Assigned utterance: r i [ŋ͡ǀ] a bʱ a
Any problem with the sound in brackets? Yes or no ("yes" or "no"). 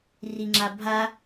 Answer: yes